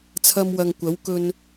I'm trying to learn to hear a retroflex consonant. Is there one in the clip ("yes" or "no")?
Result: no